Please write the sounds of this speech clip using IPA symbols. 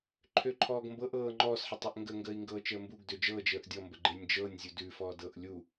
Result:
ǃʰ ø ǃʰ ɔː ɡ m b ɤ ʔ ɤː ŋ͡ǃ ɔ s ħ ə tˤ ʉ ʔ ŋ ɡ ə ŋ ɡ əː i̯ ŋ ɡ ɤː t͡ʃ əː m b u ɡ d ø d͡ʒ ɤː d͡ʒ əː ʔ dʲ ɔ m b ə ɡ͡ǃ e nʲ d͡ʒ ɤː nʲ zʲ u d ʉ f ɔː d ɤː ʔ lʲ u

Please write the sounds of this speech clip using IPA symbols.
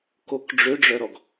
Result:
k o k ɖ͡ʐ ø ɖ͡ʐ œ ɾ ɔ ɡ

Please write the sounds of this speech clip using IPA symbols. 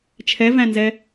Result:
t͡ʃʰ ɛ v æ̃ n z ɛ

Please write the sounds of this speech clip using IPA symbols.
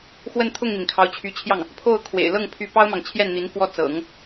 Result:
x w ə˥˧ n t̪ʰ ʊ˥˩ ŋ n̪ i˩ n kʰ ɑ˧˥ ʊ̯ t͡ɕʰ y˧˥ t͡ɕʰ j ɑ˥˩ ŋ | pʰ o˥˩ ʊ̯ kʰ w ḛ˨˩ ɪ̯ l ɤ˥˩ ŋ pʰ y˧˥ p ɑ˥ ʊ̯ m ɑ˨ ŋ t͡ɕʰ j ɛ˥˩ n n̪ i˧˥ n f w ɔ˥˩ t͡s ɤ̰˨˩˦ ŋ

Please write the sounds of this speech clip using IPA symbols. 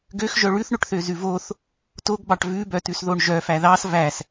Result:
ɡ ø x ʒ œ ɭ ʉ θ ɳ ɵ ʈ θ ø z ʉ v o θ | t o ɡ b ɑ ʈ v ʉ b œ t ʉ s ð o ɳ ʒ œ f æ ð ɑ s v æ s

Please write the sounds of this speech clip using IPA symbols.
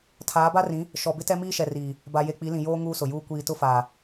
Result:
tʰ aː˨˦ b a˦ r ĩ˨˦ | ʃ ɔ˨ b ɪ˦ t ɛ˦ m iː˦ ʃ ɛ˨ r iː˨ | b a˨ j e˨ k͡p i˨˦ l ĩ˨ j oː˦ ŋ uː˦ s ʊ˨ j uː˦ kʷ iː˨ t ʊ˦ f aː˨

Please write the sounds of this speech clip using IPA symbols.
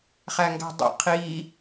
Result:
χ æ ŋ ɡ æ̤ dˤ ḛ qʰ i

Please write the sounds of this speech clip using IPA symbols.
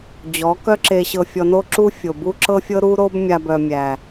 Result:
d͡ʑ ɔ˨˦ k œ˦ ǁ e˧ ɕ ɤ˧ fʲ ɔ˧ n o˦ ǁ u˦ fʲ o˨ b u˦ ǁ ɤ˦ fʲ ɤ˦ ɾ u˦ ɾ o˦ b mʲ a˧ b œ˨ mʲ æ˨

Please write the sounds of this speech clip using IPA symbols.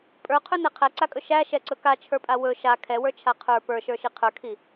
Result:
pʼ ə˞ qʰ ɵ n ɛ qʰ æ ǀ a kʼ ɵ ʃ æ ʃ ɛ ǀ ɵ k a t͡ʃʰ ə˞ pʼ a w ɵ ʃ a kʰ ɛ w ə˞ t͡ʃʰ a qʰ ə˞ p ə˞ ʃ ə˞ ʃ i qʰ ə˞ kʰ i

